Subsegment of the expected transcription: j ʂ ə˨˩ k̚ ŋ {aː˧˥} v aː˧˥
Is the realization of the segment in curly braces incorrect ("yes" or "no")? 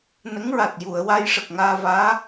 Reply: yes